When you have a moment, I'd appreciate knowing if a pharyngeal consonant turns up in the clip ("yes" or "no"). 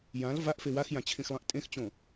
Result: no